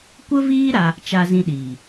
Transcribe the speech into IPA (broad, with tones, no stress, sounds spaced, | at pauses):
kʷ ə˦ v iː˦ ɾ a˧ | t͡ʃ a˧ z ĩ˧ ɗ iː˨